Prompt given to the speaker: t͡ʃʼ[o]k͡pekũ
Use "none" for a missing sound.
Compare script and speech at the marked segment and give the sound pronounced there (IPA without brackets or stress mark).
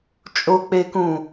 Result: o